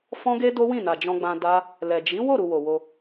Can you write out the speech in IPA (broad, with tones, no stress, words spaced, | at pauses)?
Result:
fɔ̃˦ɡe˦ do˦ wĩ˦˨na˨ d͡ʒɔ̃˧ɡ͡bã˧ da˦ | lɛ˨ d͡ʒi˨˦wo˦˨ɾu˨ wo˨wo˧